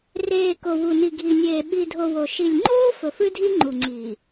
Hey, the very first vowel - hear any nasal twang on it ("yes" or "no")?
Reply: no